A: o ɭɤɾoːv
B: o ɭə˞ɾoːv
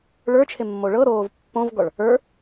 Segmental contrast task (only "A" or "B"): A